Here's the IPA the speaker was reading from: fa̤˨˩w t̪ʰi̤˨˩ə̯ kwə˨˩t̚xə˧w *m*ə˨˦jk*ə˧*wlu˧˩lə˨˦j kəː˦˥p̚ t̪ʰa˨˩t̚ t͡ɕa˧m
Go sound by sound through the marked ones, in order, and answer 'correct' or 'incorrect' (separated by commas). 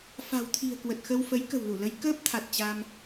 incorrect, incorrect